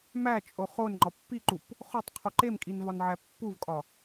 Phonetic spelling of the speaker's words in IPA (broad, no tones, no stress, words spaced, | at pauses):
mæt͡ʃʼo χon ŋ͡ǃɒpːiǃup | χotˤqʰu ǃemkʼin vɒnʕæpːuvkʼɒ